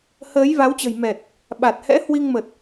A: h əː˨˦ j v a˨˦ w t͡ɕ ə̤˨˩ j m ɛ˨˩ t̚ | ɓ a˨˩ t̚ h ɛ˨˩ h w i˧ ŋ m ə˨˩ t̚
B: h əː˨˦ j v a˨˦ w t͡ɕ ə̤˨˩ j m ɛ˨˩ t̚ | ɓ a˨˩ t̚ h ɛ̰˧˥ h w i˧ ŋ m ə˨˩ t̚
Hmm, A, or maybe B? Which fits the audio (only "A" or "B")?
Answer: B